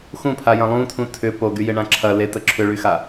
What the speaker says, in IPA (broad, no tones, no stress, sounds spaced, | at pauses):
x ũ pʰ a j ɐ̃ lˠ ũ tʰ ũ tʰ ʏ p o ɡ y j ɪ ɳ ã ǁʰ ɐ l e t ə ǁʰ ʏ ɭ y x a